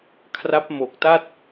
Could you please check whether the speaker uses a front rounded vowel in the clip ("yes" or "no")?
no